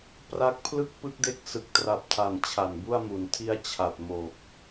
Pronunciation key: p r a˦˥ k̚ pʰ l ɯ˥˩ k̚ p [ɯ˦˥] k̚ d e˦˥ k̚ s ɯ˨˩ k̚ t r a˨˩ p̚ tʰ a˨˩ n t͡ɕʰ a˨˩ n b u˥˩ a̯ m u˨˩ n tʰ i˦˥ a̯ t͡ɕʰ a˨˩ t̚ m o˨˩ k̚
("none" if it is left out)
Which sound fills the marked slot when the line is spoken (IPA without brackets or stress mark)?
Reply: ɯ˦˥